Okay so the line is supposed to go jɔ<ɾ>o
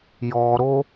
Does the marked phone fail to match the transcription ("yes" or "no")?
no